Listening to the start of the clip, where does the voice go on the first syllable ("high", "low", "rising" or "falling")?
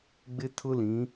high